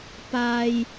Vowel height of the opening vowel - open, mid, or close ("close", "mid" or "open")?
open